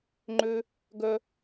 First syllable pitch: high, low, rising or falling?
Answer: high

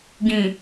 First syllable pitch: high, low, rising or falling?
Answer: low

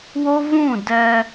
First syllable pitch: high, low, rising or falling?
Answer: high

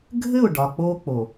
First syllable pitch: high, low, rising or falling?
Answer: falling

